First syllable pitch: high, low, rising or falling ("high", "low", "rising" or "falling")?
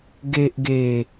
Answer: low